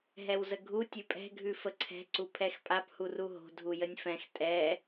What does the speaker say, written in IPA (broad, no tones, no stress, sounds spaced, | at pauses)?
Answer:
ɦ ɛ w z ə ɡʱ u tʲ ʉ pʼ ɛ̤ ɡʱ ʉ f ə ǀʰ ɛ̤ ǀ u pʰ ɛ x pʼ a p h u r u ɦ o̤ dʱ u j ə nʲ f ɛ̃ x tʼ ɛ